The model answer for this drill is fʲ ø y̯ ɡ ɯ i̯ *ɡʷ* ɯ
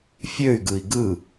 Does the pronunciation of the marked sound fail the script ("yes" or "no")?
yes